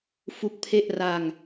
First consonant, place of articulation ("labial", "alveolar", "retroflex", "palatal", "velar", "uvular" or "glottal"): labial